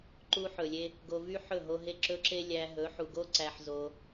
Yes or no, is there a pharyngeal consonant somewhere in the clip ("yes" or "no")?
yes